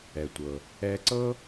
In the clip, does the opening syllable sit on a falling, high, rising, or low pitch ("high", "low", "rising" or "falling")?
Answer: low